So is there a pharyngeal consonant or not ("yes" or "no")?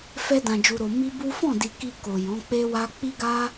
no